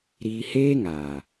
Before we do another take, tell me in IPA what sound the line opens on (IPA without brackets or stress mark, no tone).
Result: ɾ